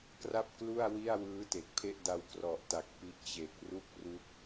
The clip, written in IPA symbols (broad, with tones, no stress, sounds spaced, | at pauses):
k r a˥˩ p̚ k l u˥˩ a̯ w i˥˩ a̯ w ɯː˦˥ t e˨˩ k̚ pʰ e˥˩ ʔ d a˧ w k r ɔ˨˩ ʔ t a˨˩ k̚ p i˦˥ ʔ t͡ɕ e˨˩ k̚ r u˥˩ k̚ r u˦˥ k̚